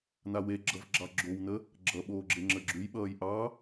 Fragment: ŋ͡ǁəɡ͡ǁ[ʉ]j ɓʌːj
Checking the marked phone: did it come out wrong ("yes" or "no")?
no